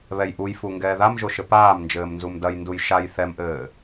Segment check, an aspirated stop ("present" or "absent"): absent